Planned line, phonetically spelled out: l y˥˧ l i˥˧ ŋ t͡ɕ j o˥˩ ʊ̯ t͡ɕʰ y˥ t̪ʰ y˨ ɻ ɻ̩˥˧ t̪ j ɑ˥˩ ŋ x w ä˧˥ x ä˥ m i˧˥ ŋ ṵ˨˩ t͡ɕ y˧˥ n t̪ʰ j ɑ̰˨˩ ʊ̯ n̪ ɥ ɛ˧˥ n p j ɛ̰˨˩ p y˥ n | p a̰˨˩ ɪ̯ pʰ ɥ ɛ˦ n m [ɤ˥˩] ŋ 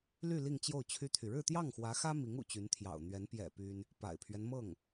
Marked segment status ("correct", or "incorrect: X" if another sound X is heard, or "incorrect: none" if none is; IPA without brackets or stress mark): correct